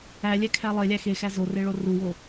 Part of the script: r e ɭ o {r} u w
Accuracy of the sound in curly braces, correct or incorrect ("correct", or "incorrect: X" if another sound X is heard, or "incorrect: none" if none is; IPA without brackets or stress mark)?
correct